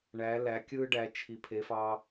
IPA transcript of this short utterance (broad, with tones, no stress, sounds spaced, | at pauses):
ɳ æ˩˧ l æ˩˧ kʲ ɯː˧ ɖ æ˩˧ t͡ʃʰ i˩˧ pʰ e˩˧ f ɑ˧